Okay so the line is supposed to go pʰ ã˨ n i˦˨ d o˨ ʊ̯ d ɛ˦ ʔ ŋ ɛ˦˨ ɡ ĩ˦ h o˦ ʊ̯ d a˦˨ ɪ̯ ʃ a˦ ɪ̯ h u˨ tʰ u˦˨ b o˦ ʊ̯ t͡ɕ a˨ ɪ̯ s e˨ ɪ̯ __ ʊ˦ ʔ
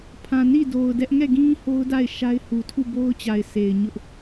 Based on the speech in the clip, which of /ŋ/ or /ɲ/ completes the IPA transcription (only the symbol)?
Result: ɲ